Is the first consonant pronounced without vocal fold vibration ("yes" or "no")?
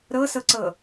no